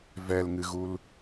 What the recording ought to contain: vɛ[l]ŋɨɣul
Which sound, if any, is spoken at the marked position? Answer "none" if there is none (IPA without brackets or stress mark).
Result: l